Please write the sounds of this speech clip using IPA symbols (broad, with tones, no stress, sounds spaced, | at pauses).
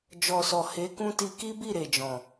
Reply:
d͡ʒ ɔ˨ s ɔ˨ h e˨˦ k ũ˦ t i˧ k i˦ b i˦˨ ɾ e˨ d͡ʒ ɔ̃˨